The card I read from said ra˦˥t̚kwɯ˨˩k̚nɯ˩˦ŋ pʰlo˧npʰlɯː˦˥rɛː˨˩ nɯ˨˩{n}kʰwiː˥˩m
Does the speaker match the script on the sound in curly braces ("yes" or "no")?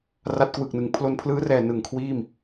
no